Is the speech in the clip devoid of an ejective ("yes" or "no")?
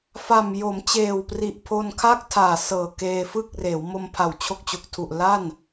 yes